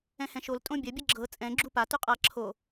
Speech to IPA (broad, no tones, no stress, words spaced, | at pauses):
ɛ̃hɛ̃ʃol tʼõbʲɐ bʲɐɡ͡ǁɤ t͡sʼɛ̃ ɡ͡ǁupa tʉqʼa ǁʰo